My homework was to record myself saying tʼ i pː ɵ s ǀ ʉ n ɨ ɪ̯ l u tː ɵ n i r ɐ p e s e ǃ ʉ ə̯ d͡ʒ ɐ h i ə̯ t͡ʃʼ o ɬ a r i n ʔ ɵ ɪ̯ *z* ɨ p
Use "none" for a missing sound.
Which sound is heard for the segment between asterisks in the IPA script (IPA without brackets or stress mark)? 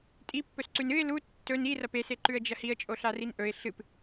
ɬ